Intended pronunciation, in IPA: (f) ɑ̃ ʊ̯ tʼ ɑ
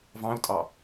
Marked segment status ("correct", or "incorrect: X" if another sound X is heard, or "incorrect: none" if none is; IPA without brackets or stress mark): incorrect: v